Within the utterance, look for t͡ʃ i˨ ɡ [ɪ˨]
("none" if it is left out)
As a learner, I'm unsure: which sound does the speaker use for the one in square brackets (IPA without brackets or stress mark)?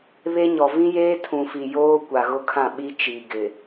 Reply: ɪ˨